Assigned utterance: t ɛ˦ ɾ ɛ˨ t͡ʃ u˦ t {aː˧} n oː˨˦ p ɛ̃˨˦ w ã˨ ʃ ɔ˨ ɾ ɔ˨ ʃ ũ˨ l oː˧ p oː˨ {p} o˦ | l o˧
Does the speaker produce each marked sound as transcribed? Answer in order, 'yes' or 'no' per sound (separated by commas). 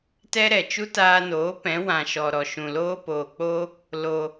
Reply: yes, no